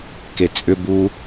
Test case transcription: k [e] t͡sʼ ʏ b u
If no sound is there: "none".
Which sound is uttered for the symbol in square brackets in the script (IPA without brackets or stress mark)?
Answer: e